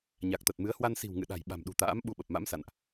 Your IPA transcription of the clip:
ɲ a˨˩ k̚ t̪ ə˨˩ t̚ m ɨ˨˦ ə̯ h w a˧ n s i̤˨˩ w ŋ ɨ̰˧˨ ɗ a̤˨˩ j ɓ a̤˨˩ m ɗ ṳ˨˩ t̪ a̰ː˧˥ m ɓ u˧ ɓ ə˨˩ p̚ m a̰˧˥ m s a̰˧˨ n ʔ

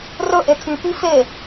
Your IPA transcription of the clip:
r ɵ ʔ e tʰ y p i f e

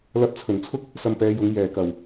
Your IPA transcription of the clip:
l ɐ˧ p̚ t͡sʰ ɵ˨˩ n t͡sʰ ʊ˥ k̚ | s ɐ˧ m p ɛː˨˧ j ʊ˨˧ ŋ j ɛː˨˩ k ɐ˨˩ w

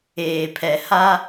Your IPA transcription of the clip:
eː˨ pʰ ɛ˨ h a˦

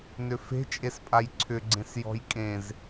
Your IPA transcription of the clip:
n ʏ f e̤ t͡ʃʼ e s pʼ a j ǀʰ ʏ ɡ͡ǀ ẽ s j ɔ̤ j kʼ ẽ z

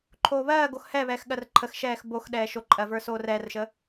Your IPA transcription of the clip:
ǃʰ oː β ɜː ɡ o x h ɛ β ɛː x ɠ ɜ r ǃʰ ə x ʃ ɛː x b o x ɗ ɛː ʃ o ǃʼ ɜ v ə˞ s oː r ɛː r ʃ ə

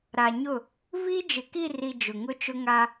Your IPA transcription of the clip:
ɾ a˨ ɲ ʊ˦˨ | v i˦ d͡ʒ ɪ˨ k i˦˨ r i˨ d͡ʒ ʊ˨ ŋ ʊ˦ t͡ʃ ʊ˦ ŋ a˦

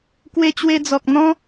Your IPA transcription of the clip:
k w e˧ t͡ɕ w e˧ d͡z ɔ˨ k̚ n̪ ɔ̃˦

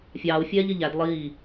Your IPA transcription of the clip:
fʲ ɑː u̯ fʲ ɛː ʎ ɪ ʎ æ d lˠ iː

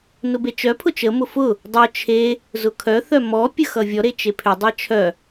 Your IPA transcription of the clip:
n ʊ b e t͡ʃ œ pʰ ʊ t͡ʃ ə m ʊ f ʊ | dˤ œ t͡ʃʰ e | z ʊ kʰ œ θ œ m ɔ pʲ ə x ʌ vʲ ɔ ɾ e t͡ʃ e pʰ ʏ dˤ ʌ t͡ʃʰ œ

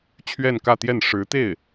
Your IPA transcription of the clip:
t͡ɕʰ ɥ ɛ˥˧ n k ä˥˧ t̪ j ɛ˥˩ n ʂ ɻ̩˧˥ t̪ e˥˩ ɪ̯

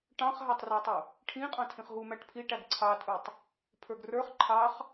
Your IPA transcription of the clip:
ʈ ɑ̃ χ ɦ æ tˤ r ə˞ tˤ u | ʈʰ ĩ qʼ ɑ̃ tʰ ĩ χ ɦ u m æ ʈ pʰ i ʈ æ ɡ ǀʰ ɑ tʼ u tˤ | pʰ ə˞ ɡ r ə˞ χ ǃʰ ɑ χ

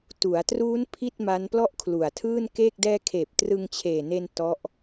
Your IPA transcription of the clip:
t u˩˦ a̯ t r uː˦˥ n pʰ i˥˩ t̚ m a˦˥ n p l ɔ˥˩ ʔ kʰ l u˨˩ a̯ tʰ ɯː˥˩ n k eː˥˩ k̚ d ɛː˧ kʰ eː˨˩ p̚ t r ɯ˧ ŋ t͡ɕʰ eː˨˩ n e˧ n t ɔ˦˥ ʔ

